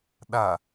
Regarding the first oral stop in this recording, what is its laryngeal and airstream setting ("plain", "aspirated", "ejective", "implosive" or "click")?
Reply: implosive